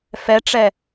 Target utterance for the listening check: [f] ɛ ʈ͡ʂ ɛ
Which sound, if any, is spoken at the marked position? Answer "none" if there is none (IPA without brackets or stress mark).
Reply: f